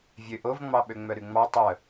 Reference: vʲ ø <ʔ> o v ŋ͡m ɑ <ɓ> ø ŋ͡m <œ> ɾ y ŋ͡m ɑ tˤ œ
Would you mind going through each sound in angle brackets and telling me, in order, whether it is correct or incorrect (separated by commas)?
correct, correct, correct